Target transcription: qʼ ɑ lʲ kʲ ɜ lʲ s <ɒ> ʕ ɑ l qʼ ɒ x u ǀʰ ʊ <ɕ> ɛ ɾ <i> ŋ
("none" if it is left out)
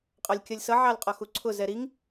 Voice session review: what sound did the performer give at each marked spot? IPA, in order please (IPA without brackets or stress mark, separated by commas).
ʌ, z, i